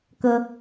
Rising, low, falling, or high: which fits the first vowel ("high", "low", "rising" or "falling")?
high